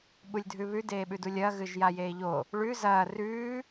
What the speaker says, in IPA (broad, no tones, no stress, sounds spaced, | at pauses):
ɓ u lʲ dʱ ʉ β ʉ d eː ɓ ʉ d u lʲ ɐː ɣ ɨ ʒ j a j eː ʎ o | ɭ ʉ z ɐː r ʉː